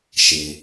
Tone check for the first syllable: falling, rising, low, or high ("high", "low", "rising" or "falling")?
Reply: low